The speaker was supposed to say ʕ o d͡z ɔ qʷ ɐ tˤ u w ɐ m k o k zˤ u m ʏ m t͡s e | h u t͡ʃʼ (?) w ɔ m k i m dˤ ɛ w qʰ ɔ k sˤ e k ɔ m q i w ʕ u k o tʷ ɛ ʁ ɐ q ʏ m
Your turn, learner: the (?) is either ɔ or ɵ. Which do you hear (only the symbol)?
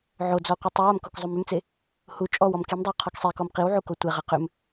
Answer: ɔ